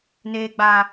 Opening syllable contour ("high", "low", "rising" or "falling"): high